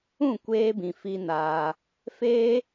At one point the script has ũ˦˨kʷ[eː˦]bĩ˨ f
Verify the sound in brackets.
incorrect: eː˧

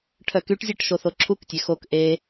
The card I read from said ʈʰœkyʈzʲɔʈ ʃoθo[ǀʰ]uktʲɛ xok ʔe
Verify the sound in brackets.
incorrect: ǁʰ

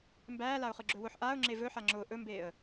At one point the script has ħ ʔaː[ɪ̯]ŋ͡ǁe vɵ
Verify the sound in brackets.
incorrect: ʊ̯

